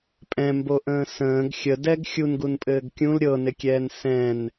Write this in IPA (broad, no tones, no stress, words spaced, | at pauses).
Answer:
pʼɛ̃mboʔə̃ː sə̃ːɡ xʲədɛɡ xʲunɡunpʼɘːɡ kʲũl ɾʲɤnɪkʲɛːn sɛ̃n